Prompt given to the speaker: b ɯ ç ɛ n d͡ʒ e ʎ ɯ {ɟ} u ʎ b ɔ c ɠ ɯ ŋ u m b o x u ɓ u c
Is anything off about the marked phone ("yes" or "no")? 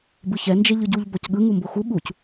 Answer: no